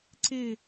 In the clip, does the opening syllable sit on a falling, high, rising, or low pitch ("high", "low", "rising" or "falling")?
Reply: falling